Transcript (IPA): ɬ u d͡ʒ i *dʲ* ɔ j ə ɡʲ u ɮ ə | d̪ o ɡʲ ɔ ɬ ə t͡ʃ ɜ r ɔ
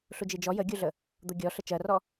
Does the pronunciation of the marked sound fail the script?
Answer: yes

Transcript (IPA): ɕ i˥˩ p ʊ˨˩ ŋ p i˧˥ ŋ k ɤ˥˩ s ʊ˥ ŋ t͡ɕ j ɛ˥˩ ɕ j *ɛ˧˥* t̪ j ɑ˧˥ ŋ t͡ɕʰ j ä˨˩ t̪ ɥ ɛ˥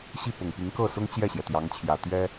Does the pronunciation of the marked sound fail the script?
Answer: yes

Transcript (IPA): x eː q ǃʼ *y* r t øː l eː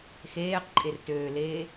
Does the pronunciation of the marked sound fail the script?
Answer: yes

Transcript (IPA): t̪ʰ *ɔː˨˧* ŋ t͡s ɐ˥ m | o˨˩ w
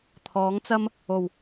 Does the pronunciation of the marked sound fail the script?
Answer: yes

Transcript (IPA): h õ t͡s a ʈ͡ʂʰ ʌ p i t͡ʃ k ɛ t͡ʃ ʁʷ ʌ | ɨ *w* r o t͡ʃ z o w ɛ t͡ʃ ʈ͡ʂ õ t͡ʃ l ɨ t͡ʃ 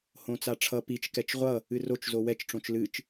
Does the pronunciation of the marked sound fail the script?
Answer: yes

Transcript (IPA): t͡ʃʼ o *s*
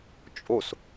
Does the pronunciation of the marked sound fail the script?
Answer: no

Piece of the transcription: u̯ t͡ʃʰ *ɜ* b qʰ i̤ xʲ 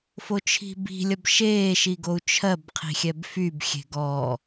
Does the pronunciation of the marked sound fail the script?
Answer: no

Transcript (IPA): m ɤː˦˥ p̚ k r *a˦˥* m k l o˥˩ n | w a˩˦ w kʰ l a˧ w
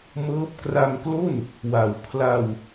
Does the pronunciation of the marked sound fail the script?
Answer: yes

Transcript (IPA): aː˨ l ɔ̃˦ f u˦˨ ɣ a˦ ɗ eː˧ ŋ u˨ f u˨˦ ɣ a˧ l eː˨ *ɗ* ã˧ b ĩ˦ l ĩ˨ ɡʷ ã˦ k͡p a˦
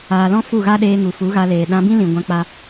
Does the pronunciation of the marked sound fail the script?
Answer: no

